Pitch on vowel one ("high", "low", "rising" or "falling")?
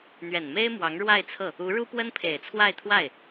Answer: low